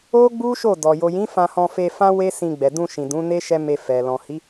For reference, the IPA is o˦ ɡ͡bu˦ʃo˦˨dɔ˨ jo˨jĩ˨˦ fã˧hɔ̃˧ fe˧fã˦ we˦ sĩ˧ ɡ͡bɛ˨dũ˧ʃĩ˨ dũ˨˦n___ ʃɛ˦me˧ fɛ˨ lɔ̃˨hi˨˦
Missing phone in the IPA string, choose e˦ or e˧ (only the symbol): e˦